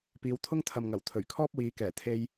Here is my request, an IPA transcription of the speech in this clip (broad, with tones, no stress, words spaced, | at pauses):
piː˨˧wt̪ʰʊ˥ŋt̪ʰɐ˨mŋɐ˨˩w t̪ʰɵ˨˩ɥkʰɔː˥p̚wiː˨˧kɛː˨˩ t̪ʰe˧j